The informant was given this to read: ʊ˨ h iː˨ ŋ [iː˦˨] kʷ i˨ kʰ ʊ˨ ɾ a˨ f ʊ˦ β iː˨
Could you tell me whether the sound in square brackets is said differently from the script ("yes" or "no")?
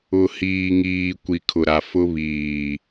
yes